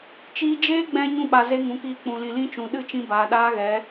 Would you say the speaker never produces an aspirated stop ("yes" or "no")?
yes